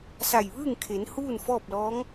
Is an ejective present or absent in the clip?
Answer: absent